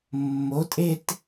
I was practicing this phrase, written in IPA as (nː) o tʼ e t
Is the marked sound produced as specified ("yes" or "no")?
no